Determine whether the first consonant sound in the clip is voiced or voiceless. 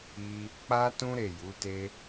voiceless